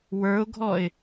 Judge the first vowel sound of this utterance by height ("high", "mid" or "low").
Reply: mid